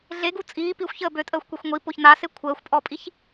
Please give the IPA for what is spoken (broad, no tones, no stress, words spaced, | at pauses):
ɮeɡu t͡sʼiː pixʷçəː bøtʼəːxʷkʷexʷ ŋʷipoç nase kʷʰəːxʷpʼɔpʼiç